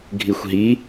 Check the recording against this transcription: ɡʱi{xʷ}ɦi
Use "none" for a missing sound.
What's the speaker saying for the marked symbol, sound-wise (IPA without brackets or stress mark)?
xʷ